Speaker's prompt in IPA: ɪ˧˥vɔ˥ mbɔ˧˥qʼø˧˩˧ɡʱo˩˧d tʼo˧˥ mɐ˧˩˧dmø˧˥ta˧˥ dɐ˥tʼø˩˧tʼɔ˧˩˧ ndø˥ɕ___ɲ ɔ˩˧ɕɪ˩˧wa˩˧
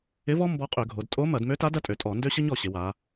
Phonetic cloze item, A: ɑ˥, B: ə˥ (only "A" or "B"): B